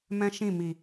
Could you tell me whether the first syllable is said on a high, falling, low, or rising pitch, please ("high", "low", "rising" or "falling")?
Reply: high